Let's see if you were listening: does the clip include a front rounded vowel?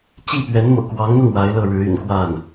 yes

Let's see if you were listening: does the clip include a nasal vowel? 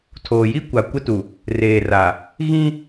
yes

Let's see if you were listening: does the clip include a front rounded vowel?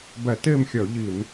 yes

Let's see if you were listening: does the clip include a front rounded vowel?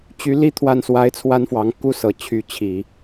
yes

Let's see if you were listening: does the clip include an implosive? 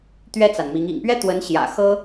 no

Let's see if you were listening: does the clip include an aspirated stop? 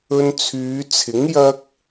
yes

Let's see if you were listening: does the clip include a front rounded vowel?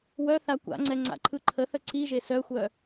yes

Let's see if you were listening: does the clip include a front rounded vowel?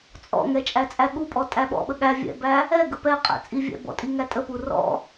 no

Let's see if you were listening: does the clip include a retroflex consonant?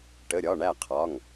yes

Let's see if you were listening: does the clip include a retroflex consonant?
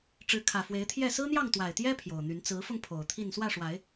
yes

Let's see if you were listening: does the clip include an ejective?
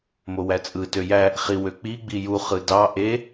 yes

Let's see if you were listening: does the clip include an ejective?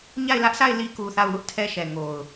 no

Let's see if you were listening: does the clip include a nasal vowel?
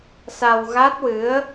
no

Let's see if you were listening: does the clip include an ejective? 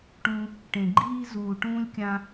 no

